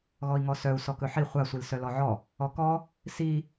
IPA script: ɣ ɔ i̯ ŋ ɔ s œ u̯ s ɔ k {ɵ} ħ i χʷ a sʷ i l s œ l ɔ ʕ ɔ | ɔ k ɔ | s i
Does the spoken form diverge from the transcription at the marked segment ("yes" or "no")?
no